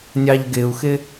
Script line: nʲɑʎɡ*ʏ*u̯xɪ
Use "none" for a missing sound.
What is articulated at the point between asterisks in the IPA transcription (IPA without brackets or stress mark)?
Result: ɪ